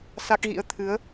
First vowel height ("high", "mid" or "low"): low